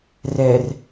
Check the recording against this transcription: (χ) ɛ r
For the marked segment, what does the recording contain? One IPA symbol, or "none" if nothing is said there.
r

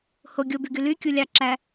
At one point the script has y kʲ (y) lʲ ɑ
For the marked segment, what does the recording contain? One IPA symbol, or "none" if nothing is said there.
u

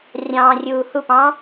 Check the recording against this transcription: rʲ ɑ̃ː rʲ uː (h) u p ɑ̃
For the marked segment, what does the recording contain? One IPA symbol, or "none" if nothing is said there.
h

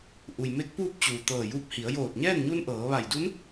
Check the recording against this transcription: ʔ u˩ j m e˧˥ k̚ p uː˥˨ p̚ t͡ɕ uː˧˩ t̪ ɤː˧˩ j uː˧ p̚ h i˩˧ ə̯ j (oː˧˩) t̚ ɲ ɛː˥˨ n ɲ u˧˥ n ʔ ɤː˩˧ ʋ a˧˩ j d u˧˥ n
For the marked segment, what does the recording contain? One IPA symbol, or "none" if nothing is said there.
oː˧˩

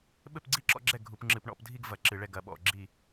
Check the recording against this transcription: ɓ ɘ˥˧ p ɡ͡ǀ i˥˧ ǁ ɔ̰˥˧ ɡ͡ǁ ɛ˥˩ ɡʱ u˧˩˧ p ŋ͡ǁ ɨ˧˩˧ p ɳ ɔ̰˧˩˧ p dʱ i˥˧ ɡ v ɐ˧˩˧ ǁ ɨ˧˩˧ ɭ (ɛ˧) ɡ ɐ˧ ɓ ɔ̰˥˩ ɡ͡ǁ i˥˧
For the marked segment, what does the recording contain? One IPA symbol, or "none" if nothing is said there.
ɛ˧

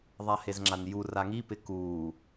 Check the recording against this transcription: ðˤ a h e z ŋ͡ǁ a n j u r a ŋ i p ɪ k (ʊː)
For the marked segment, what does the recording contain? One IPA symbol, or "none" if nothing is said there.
uː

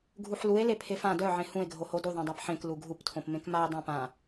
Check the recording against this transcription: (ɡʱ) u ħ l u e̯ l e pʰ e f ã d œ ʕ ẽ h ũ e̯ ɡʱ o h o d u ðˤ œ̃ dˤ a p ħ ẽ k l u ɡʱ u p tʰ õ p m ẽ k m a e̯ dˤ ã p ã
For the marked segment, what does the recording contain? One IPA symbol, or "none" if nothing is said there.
ɡʱ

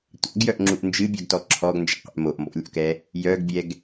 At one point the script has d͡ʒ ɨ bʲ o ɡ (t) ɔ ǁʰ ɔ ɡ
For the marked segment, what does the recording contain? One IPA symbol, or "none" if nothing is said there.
t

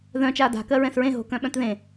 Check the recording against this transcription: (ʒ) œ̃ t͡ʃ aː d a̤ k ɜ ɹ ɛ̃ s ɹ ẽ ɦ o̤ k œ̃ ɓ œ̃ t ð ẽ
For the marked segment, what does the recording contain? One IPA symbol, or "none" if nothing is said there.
ð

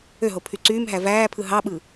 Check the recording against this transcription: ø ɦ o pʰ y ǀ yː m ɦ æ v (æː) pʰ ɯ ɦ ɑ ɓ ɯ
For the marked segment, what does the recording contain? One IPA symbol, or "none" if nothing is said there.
æː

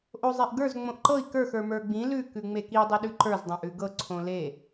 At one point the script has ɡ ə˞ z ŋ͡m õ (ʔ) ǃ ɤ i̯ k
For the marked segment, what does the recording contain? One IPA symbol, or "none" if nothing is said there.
ʔ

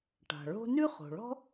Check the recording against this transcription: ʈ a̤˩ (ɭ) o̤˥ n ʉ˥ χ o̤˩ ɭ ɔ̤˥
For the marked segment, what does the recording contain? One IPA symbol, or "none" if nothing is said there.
ɭ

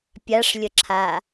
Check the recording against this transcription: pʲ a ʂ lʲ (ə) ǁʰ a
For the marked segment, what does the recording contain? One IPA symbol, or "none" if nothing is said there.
ə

